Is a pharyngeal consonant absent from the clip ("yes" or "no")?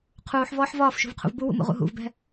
no